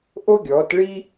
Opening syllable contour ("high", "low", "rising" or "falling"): high